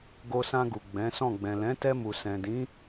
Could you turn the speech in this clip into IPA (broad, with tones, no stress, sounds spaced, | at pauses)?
ɡ o˧ s ã˧ ɡ u˨ ɡ͡b ɛ̃˨˦ s ɔ̃˦˨ ɡ͡b ɛ̃˨ l ɛ̃˨˦ t ɛ˧ m u˨ s ɛ̃˨ d ĩ˨˦